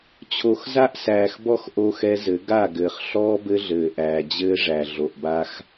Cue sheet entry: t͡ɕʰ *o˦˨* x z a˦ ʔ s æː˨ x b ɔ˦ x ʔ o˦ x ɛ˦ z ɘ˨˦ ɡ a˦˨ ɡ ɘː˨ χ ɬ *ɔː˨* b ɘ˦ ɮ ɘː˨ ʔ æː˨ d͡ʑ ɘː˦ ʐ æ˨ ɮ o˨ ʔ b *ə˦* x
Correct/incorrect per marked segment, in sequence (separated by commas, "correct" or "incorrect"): incorrect, incorrect, incorrect